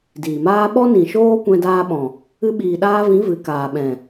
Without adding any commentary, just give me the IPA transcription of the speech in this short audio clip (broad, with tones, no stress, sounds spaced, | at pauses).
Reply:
d iː˨ m aː˦ ɓ ɔ˦ n ĩ˨ ʃ oː˦ kʷ ɛ̃˧ d aː˧ ɓ ɔ̃˨ | ɨ˧ ɓ iː˨ ɗ aː˧ v ĩ˨˦ v ɨ˨ k aː˨ ɓ ɛ̃˨